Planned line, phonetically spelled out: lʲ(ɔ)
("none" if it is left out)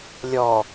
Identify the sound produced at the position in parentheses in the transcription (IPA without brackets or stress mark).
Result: ɔ